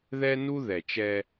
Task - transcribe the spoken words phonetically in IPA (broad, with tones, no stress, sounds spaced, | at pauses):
ð ɛ˦ n u˦ ð ɛ˨ t͡ʃ ɛ˦